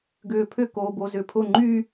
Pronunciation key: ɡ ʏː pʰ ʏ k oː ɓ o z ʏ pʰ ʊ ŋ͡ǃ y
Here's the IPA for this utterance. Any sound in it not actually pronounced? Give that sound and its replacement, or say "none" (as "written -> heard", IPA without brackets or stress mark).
ɓ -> b